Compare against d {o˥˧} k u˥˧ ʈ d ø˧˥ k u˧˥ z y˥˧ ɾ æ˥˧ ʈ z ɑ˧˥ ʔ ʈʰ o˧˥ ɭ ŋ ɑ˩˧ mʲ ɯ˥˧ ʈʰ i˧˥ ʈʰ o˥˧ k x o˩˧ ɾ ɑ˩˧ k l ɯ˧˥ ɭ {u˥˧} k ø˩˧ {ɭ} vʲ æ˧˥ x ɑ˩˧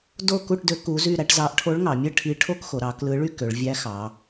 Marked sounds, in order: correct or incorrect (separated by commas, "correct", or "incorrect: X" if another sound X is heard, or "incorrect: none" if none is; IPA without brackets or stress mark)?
correct, incorrect: y˥˧, correct